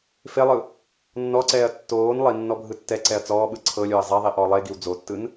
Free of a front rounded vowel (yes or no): yes